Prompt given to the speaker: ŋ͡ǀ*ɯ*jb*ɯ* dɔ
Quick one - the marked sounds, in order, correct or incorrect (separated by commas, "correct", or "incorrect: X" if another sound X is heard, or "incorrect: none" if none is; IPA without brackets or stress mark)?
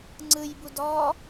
correct, incorrect: u